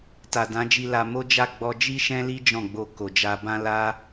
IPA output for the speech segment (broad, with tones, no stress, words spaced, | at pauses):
ta˨dã˨˦d͡ʒi˧la˧ mo˦d͡ʒa˦˨ ɡ͡bɔ˧d͡ʒi˦ʃɛ̃˦li˦ d͡ʒɔ̃˦˨ɡ͡bo˧ ko˨d͡ʒa˧bã˦ la˦